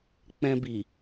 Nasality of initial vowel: nasal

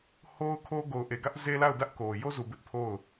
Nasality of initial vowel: oral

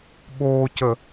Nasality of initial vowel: oral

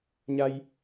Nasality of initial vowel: oral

